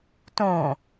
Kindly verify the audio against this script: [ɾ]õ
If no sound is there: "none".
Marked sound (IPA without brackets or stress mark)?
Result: t